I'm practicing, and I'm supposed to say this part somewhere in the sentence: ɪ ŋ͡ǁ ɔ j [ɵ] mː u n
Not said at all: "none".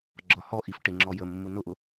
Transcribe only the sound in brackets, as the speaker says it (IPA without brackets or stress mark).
ə